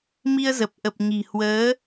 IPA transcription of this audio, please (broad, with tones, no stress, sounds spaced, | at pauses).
m i˧ ə̯ z ə˨˩ p̚ ʔ ə˨˩ p̚ ɲ i̤˨˩ h w əː˨˦